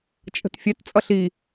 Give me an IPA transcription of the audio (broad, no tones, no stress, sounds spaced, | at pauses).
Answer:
t͡ʃʼ ə̤ t fʲ ɛ t t͡sʼ ʌ ɬ i